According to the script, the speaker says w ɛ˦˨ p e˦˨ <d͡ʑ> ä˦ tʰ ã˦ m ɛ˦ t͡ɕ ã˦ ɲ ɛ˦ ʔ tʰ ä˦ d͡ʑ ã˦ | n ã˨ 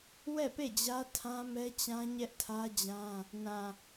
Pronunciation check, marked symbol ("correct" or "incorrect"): correct